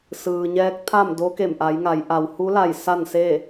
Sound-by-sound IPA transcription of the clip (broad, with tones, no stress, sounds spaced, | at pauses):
s ɯː˩ ɲ ɛː˧˥ k̚ t̪ʰ a˥˨ m d o˧˥ k e˧˩ m ʔ a˩˧ j ŋ a˩˧ j ʔ a˩ w h u˧˥ l a˧˩ j s a˥˨ n s e˥˨